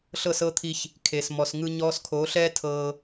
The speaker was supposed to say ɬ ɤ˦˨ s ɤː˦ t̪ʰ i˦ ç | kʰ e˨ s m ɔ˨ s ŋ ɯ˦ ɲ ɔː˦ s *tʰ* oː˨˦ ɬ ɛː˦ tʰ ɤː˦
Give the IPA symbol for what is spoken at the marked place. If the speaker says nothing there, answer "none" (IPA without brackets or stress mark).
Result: kʰ